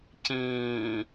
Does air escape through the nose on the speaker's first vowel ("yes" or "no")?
yes